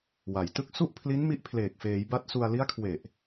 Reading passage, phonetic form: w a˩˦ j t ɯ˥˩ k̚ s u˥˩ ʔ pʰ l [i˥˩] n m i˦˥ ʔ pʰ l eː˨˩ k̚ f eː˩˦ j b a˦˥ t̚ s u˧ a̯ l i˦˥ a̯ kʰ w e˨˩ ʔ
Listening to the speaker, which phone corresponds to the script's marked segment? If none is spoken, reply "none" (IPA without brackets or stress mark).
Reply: i˦˥